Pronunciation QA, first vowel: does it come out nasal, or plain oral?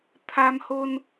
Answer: oral